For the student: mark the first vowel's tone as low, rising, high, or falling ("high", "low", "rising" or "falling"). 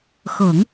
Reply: low